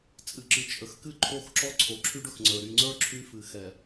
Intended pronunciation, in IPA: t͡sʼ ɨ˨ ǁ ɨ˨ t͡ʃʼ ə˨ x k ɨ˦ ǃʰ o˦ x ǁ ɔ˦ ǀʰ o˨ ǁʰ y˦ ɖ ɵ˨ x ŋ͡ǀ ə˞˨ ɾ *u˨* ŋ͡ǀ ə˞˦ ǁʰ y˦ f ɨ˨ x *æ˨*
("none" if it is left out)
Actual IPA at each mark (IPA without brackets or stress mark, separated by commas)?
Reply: y˨, ɛ˨